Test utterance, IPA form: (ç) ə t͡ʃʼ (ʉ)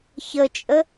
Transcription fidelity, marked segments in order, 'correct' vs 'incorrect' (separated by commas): correct, incorrect